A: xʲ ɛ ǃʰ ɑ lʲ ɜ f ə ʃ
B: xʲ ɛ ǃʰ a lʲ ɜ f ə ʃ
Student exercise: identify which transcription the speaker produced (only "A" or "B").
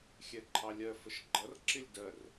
A